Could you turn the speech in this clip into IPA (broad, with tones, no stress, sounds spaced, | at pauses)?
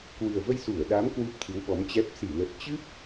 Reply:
k w ɨ˨˩ ə̯ v ə˧ j s u˧˩ ə̯ ɗ a˨˦ m k w u˦˥ p̚ t̪ʰ ɨ˨˦ w ɓ ɔ˨˦ m t͡ɕ ɛ˦˥ p̚ s i˧˩ l ə˨˩ t̚ t͡ɕ ɨ˦˥ p̚